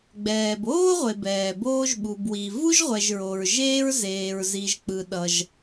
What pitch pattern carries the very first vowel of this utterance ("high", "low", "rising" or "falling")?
low